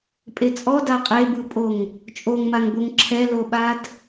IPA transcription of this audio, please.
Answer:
pʼ e t͡sʼ ɔ d a qʼ e b ɯ pʼ o ŋ | t͡ʃʼ o ŋ m a ŋ b o ŋ ǁʰ ɛ l o ɓ a d

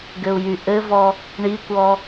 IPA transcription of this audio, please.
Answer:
ɡ ɘ u̯ j y ʔ ɘ v ɔ | ɳ i kʷ ɔ

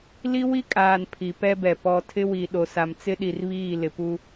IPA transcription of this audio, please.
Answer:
l i˦ w i˦ kʼ aː˨ n pʰ i˨ p ɛ˦ b ɛ˨ p ɔ˨ tʰ ɪ˦ w i˨ ɗ o˨ s a˨ m t͡s ɪ˦ ɗ i˨ r β iː˦˨ l ɪ˨ p u˦

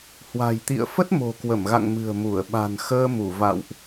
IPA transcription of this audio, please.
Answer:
h w a̤˨˩ j t̪ ḭ˧˨ ə̯ f ə˦˥ t̚ m o̤˨˩ k w ə˧˩ m ɣ a̰˧˨ ŋ m ɨ̤˨˩ ə̯ m u˧˩ ə̯ ɓ a̤˨˩ n x əː˧ m u˧˩ v a̰˧˨ w ʔ

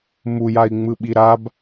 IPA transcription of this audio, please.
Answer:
m u j a i̯ ŋ͡m ɯ ɓ i ɾ a b

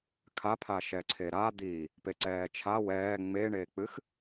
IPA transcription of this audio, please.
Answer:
kʰ a pʰ a ʃ ɛ ǀʰ e ɾ a d̪ i | p e ǀ ɛː t͡ʃʰ a w ɛː ŋ͡m eː ɳ eː k͡p ɨ x

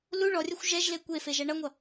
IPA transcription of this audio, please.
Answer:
l u ɭ ɔ rʲ ɐ xʷ ʒ ɛ ʒ l e kʷ e f e ʒ ɐ ɳ ʌ ŋʷ ʌ

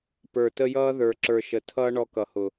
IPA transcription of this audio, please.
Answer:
p ə˞˨ t ə˦ j ʌː˦ ð ə˞˨ ǁ ə˞˨ ʃ ə˨ tʰ ʌː˦ ɳ ɔ˦ k ʌ˨ h ʊ˨

